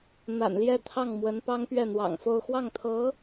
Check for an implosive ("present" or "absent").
absent